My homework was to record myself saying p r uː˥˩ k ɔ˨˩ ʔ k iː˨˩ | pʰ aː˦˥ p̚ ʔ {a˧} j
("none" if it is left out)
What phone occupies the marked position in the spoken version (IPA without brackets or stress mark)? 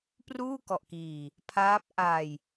a˧